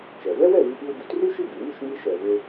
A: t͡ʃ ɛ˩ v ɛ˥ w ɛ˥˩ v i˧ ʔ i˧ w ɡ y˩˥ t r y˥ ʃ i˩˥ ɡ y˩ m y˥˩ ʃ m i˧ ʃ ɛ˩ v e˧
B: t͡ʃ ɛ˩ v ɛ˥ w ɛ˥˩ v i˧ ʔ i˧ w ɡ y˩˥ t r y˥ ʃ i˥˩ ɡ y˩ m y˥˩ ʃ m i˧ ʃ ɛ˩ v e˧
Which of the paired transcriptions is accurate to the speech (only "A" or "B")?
B